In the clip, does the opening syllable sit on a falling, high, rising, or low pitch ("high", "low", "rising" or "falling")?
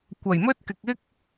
low